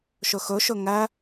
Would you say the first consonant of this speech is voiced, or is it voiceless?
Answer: voiceless